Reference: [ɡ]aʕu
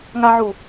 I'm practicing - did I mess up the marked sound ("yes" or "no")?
yes